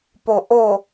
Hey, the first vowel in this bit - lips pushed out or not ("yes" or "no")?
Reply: yes